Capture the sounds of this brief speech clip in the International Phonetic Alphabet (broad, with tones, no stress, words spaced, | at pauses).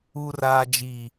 u˨raː˨ d͡ʒiː˨